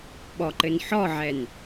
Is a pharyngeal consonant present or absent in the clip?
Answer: present